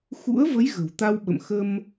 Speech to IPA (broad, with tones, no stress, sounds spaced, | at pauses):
x ṵ˧˥ ə̯ v ə˨˦ j ɣ ə̤˨˩ w t̪ a˧ w ɓ ə̰˧˨ m x ə˧ m